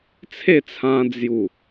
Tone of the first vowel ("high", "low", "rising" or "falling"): falling